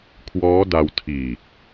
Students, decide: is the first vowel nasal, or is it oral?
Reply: oral